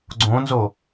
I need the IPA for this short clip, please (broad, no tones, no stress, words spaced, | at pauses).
ɡ͡ǀõnzo